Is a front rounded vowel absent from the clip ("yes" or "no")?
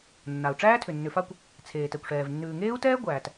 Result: no